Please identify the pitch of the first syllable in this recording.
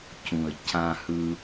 low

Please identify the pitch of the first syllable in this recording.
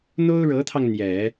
high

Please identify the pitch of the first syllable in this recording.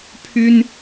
high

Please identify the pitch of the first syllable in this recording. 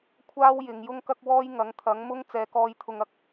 high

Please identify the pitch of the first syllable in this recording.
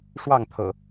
falling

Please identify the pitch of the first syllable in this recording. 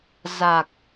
low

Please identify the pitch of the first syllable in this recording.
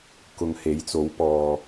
low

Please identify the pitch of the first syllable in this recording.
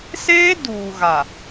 high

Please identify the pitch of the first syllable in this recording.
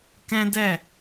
high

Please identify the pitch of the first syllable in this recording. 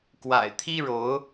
low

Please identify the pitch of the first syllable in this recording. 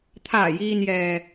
low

